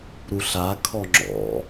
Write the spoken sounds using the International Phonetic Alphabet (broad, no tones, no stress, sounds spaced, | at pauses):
ɾ u ɬ a kʰ ɔ ŋ͡ǁ ɔ̰